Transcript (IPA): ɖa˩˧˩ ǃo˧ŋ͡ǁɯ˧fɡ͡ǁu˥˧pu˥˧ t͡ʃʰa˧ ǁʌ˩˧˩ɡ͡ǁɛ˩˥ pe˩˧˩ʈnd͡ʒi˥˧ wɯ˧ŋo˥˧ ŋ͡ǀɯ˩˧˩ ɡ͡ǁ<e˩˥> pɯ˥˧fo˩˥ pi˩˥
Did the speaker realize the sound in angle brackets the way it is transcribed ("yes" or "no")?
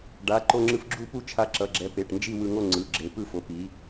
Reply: yes